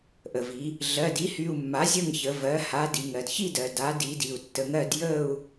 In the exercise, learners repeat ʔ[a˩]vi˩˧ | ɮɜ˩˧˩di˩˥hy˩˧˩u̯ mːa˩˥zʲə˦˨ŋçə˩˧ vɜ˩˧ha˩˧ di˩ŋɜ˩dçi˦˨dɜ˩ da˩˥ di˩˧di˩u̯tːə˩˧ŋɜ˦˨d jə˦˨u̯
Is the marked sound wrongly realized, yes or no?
yes